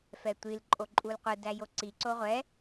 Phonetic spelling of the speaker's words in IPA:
f ɛ tʷ i l ǃʼ o ǃʼ u l qʷ ɯ d æ j o ǀ i ǀ o ʁʷ ɛ

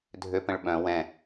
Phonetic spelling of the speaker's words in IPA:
dʱ ø p ə̃ ɭ ɓ œ̃ w ɛ̃

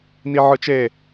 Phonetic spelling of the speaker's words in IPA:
n i ʕ ɯ t͡ʃ e

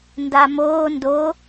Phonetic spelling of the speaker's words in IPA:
n d a m oː n d o

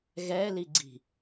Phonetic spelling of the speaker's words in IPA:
ɣ ɛ l i ɡ͡ǀ i̤

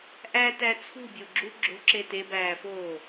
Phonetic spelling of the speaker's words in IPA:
ʔ æ t æ t͡sʰ ṳ bʲ o ɡ͡ǁ u ɡ͡ǁ o̤ ǁ e t e b æː f oː

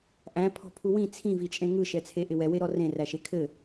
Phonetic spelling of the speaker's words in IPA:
ʔ æ̃ pʰ ɔ̤ pʰ u w ĩ t͡sʰ ĩ v i t͡ʃʼ ẽ ŋ ɯ ʃ ɛ t͡sʰ e ʔ ɪ w ɛ w e ɾ ɔ r ẽ r æ ʃ e kʰ ɘ

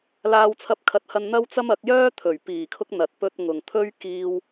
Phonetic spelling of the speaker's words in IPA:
l aː˧ w t͡sʰ ɐ˧ p̚ kʰ ɐ˨˥ t̚ h ɐ˧ n n̪ ɐ˥ w t͡s ɐ˥ m ɐ˨˥ k̚ j œː˥ t̪ʰ ɵ˨˩ ɥ p iː˨˩ kʰ ʊ˧ k̚ n̪ ɐ˨ t̚ p ɵ˧ t̚ ŋ ʊ˨ ŋ t̪ʰ ɵ˥ ɥ k iː˧ w

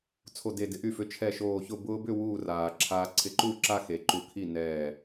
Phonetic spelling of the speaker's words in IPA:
t͡sʰ o˧˩ d e˧˩ d ɪ˨˥ ʔ y˧˩ f ʏ˨˥ t͡ʃʰ ɛ˧˩ ʃ oː˧˩ ç ʊ˥˩ b ʊː˧ b ʏ˥˩ w uː˥˩ r aː˩ ǁʰ aː˧ ǀʰ ɪ˨˥ ǃ uː˥˩ ǁ a˥˩ x e˩ ǃ u˧˩ kʰ i˥˩ n ɛː˧˩

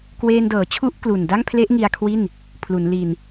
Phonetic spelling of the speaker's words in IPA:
k w eː˧ n d ɤː˩˦ t͡ɕʰ u˦˥ ʔ k l u˨˩ n d a˥˩ ŋ pʰ l e˦˥ ʔ ŋ i˧ a̯ kʰ w i˥˩ n | pʰ l u˩˦ n l i˧ n

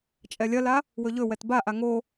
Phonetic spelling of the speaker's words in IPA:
t͡ʃʼ ɛ lʲ ɐ l a | w ɵ ʎ ɵ w ɛ t b a ʔ a ŋ o

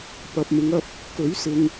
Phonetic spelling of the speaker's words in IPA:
p ɐ˨ p̚ m ɪ˨˧ ŋ ɐ˧ p̚ | k ɵ˨˥ ɥ s ɪ˨ ŋ

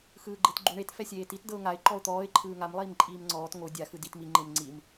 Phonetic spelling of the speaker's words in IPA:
x ɯː ɡ͡ǃ e t ɡ͡ǃ u ɳ e t f ɛ sʲ eː t i t d ɤ ʊ̯ ŋ a ɪ̯ ǃ ɔ ʊ̯ t̪ ɔː ɪ̯ ǃʰ ɯː ŋ a m lˠ iː m ǃʼ iː m ŋ͡ǀ ɔː t ŋ o dʲ a x ɯ d i t m i ŋ͡ǃ e m ŋ͡ǀ i m

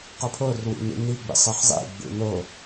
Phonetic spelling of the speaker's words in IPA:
q o pʰ o r w ḭ n ḭ n i ɡ͡b ḭ sˤ ɯ χ zˤ ḭ ɡ͡b ṵ n o

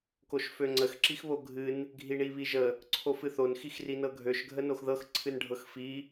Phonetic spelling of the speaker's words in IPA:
k o ʃ f ø ŋ͡ǀ ə x ǁ i x β o ɡʱ ɨ n | ɡʱ i ɳ i β i ʒ ə | ǀʰ o f ɨ θ o n x i x r i n ɤ ɡʱ ø ʃ ɡʱ ə n o x ð ɤ x ǀʰ ɨ n ɖʱ ɤ x f i

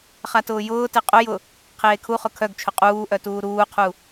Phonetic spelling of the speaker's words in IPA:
χ a t ʊː j ʊː t e qʼ ʊ j ʊ | qʰ eː kʰ u χ ʊ kʰ œ ɡ t͡ʃʰ ʊ qʼ uː ʔ œ t uː ɾ uː qʰ u

